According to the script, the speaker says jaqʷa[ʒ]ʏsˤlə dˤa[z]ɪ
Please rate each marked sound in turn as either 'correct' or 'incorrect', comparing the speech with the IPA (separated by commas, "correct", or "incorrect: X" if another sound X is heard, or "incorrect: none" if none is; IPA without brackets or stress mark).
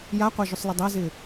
correct, correct